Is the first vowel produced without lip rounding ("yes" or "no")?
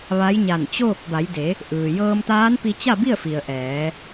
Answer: yes